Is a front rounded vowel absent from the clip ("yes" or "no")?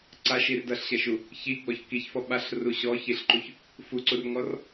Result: yes